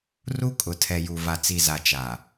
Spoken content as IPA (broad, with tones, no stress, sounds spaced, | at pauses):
r u˦ kʼ ʊ˨ tʰ ɛ˨ j u˨ v a˨ t͡s i˨ z a˨ t͡ʃ aː˨